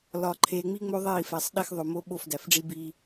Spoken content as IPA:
l ɒ˨ ǃʰ e˨ ŋ͡m i˦ ŋ͡m o˦ ðˤ e˦˨ i̯ f æ˨ sˤ ɗ e˦ x ðˤ o˨ m o˦ ɓ o˦˨ f d æ˨ f ɖ͡ʐ i˦ b i˦

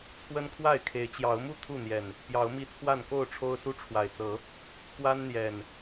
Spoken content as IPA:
t͡sʰ w ə˦ n kʰ w a˥˨ ɪ̯ kʰ e˨˦ ɪ̯ t͡ɕ j ɑ˨˦ ʊ̯ m u˥˨ t̪ʰ u˥˨ n̪ j ɛ˨˩ n | p j ɑ˨˦ ʊ̯ m i˦ t͡sʰ w a˥˨ n k o˥˨ ʊ̯ ʈ͡ʂʰ o˦ ʊ̯ s u˦ ʈ͡ʂʰ w a˨˩ ɪ̯ t͡s ɤ˨˦ | k w a˦ n n̪ j ɛ˨˩ n

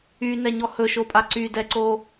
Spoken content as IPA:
y n ɛ ɲ ɔ h ɵ ʃ o pʼ a ǀ y d ɛ ǀ o

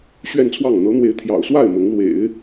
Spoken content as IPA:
ɕ ɥ ɛ˥˧ n t͡sʰ w ɑ˥˩ ŋ n̪ ɤ˧˥ n̪ w e˧˥ ɪ̯ t̪ʰ j ɑ̰˨˩ ʊ̯ s w a˥˩ ɪ̯ m ʊ˧˥ ŋ l w ḛ˨˩˦ ɪ̯

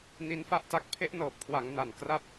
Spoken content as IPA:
n i˦˥ n f a˥˩ ʔ t a˦˥ k̚ pʰ e˦˥ ʔ n ɤː˨˩ p̚ kʰ w a˩˦ ŋ n a˨˩ n k r a˦˥ p̚

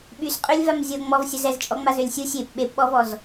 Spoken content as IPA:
ɓ y s qʼ ø lʲ v a m zʲ o ŋ͡m ɔ v sʲ ə z ɛ z t͡ʃʼ ɔ ŋ͡m a z ø lʲ sʲ u sʲ e p ɓ e p ɓ ɔ v ɔ z

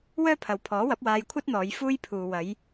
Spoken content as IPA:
w œː˥ pʰ ɐ˨ w pʰ ɔː˨˥ w ɐ˨˥ p̚ w aː˧ j kʷʰ ɐ˥ t̚ n̪ ɔː˨˧ j f uː˥ j pʰ uː˨ w ɐ˨˧ j

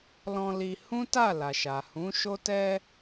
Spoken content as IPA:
l ɔ̃˧ l i˧ h ũ˦ t a˦˨ l a˨ ʃ a˨ h ũ˨˦ ʃ o˦ t ɛ˧

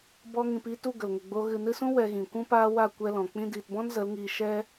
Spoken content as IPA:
b ɔ˧ ŋ ĩ˨ p iː˧ t u˦˨ ɡ ə˨ l ŋ ə˨ ɡ͡b o˧ ɣ ɨ˨ n ɨ˧ s ũ˦ w ɛ˧ ɣ ĩ˨ kʷ ũ˦ p aː˦ w a˦˨ kʷ ɛ˦ l ɔ̃˨ k͡p ĩ˧ d iː˨ t b ɔ̃˦ n z ə˨˦ l ŋ iː˧ ʃ ɛ˦

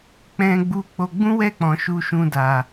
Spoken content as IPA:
k͡p ɛ̃˧ ɡ͡b u˧ k͡p o˧ ɡ͡b ũ˦ w ɛ˦˨ k͡p ɔ̃˨ ʃ u˧ ʃ ũ˧ d a˨

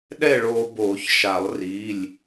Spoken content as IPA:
ɗ ɛ˥˨ ɭ oː˧ b oː˨˩˦ ç ʃ a˨˩˦ lˠ r iː˩˧˩ lʲ

